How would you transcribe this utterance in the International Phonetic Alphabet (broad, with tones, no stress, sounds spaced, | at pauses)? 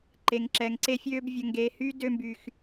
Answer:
ǃ e˨ ŋ ǁ ɛ˨ ŋ ǀ e˧ fʲ øː˧ b vʲ ə˨ ŋ ɡ eː˨ h yː˦ d ø˧ m b y˨ x